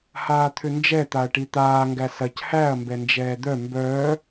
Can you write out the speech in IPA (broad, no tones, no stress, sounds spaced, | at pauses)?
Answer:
h aː t̪ʰ ʏ n d͡ʒ ɛ t̪ a ɐ̯ ʈ i t̪ aː ŋ ɡ æ s ɐ c h æ ɐ̯ m b ɛ n d͡ʒ ɛː d̪ œ m b œː